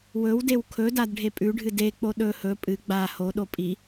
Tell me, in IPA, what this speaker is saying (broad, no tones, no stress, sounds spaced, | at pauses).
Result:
w ɵ w d e w kʰ ɵ d a d ɖʱ e pʼ ʉ ɖʱ ɨ d e k͡p o ɗ ɵ h ɵ pʼ ɨ ɡ͡b a h o ɗ o pʼ i